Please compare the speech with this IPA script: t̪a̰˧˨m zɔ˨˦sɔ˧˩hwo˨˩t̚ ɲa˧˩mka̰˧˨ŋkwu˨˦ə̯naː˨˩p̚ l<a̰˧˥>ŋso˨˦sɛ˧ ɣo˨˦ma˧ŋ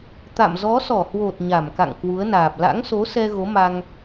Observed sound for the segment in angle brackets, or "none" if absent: a̰˧˥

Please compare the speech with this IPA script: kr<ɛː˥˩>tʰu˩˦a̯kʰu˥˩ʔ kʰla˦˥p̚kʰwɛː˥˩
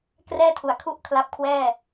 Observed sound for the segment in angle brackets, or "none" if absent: ɛː˥˩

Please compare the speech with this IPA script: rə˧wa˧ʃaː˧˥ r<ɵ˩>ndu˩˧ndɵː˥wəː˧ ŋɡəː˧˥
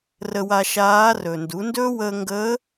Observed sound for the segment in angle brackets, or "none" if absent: ɵ˩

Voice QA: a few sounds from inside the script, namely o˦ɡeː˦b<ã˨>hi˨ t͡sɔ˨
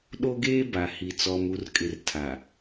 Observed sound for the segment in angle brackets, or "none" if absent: a˨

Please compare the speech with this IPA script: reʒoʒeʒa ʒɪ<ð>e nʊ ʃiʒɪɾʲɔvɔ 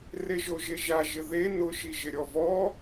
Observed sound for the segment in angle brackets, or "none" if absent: ð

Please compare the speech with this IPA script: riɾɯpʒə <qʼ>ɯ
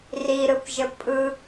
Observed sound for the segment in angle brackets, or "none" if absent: pʼ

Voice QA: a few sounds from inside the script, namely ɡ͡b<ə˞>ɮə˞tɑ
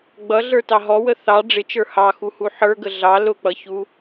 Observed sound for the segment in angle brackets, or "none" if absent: ʌ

